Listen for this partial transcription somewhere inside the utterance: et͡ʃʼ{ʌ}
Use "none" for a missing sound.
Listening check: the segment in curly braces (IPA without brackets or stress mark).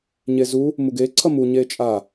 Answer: a